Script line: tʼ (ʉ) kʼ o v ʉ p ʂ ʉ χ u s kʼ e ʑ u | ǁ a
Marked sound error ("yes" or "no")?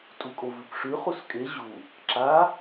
yes